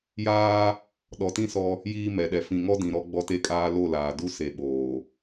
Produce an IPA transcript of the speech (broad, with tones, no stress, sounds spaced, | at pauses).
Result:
j aː˦ | ɗ ɔ˨ t ĩ˦ s ɔ˦ | j iː˦ m ɛ˨ ɗ ɛ˨ f ĩ˨ ŋ ɔ˦ d ĩ˨ ɾ ɔ˦ ɡ͡b ɔ˦ t e˦ kʼ aː˦ l o˦˨ l aː˨ d u˦ s e˨ ɓ oː˨